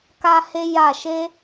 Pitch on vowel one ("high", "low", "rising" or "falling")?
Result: high